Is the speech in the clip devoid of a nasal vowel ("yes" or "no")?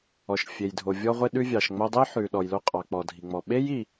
yes